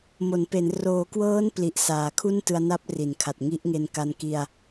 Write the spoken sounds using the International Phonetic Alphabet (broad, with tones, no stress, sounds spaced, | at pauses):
m o˩˦ n p e˩˦ n r oː˩˦ k w ɤː˦˥ n p l i˨˩ ʔ s aː˩˦ kʰ u˥˩ n t ɯ˧ a̯ n a˦˥ p̚ r i˩˦ n kʰ a˨˩ t̚ ŋ i˦˥ ʔ ŋ e˧ n k a˧ n k i˧ a̯